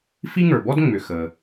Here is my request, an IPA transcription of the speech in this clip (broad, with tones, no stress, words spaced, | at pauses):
fi˥ŋə˞˩bɔ˥d ŋ͡mʏ˩ xə˩